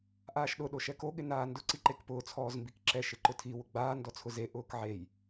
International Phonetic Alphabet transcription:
ʔ aː ʃ ɗ ʊ ɗ o ʃ ɛ k o ɠ ɪ n aː n d ʊ ǀ i ǃ e k p ʊː t͡sʰ ɔː z m b i k ǁ ɛ ʃ ɪ ǃ ʊ tʰ i w ʊ ɡ͡b aː n d ɔ t͡sʰ ʊ z e ʔ ʊː k ʕ e j

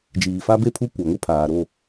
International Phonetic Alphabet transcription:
d͡ʒ iː˨ f a˦ b e˦ pʰ u˦ kʷ a˨ ŋ ʊ˦ pʰ aː˨ ɾ o˦˨

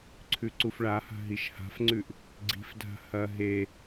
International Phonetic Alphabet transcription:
ǀʰ ʉ ǀ u f ɭ a h a̤ ɦ i ʃ h a̤ f ŋ͡ǀ ʉ ʔ | ɡ͡ǀ i̤ f dʱ a̤ h ɐ ɦ e

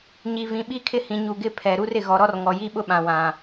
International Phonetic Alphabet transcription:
ɲ i˨ v ĩ˨ ɓ i˦ kʰ ɪ˦ h ĩ˨ ɲ u˨ ɡ ɪ˦˨ pʰ ɛ˨ ɾ u˦ r ɪ˨ ɣ ɔ˨ ɾ ɔ˦ r ŋ ɔ˨ j i˦ ɓ ʊ˦ ɓ ã˨ w ã˨

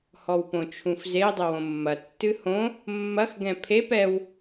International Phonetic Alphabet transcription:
h ɔ w p õ t͡ʃʰ ũ f z e dˤ ɘ w õ mː ɐ tː ɨ h õ | mː ɐ x ɡ ɛ̃ pʰ e p ɛ w

